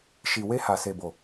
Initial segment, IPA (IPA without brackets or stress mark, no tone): ʃ